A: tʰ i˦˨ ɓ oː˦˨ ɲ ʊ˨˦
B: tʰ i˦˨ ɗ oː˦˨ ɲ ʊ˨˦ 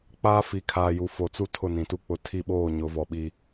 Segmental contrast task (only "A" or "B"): A